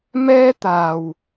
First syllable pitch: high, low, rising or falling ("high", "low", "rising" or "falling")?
high